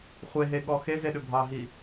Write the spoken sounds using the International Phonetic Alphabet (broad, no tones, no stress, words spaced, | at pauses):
χʷeɦeɠɔ xezeɗʏ bʱɑɦi